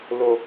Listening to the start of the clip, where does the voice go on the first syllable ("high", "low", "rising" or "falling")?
low